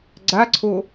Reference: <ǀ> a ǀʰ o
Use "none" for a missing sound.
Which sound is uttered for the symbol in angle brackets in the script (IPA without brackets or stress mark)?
ɡ͡ǀ